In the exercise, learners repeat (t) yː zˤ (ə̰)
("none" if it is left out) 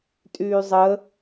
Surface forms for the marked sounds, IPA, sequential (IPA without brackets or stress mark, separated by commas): tʼ, ə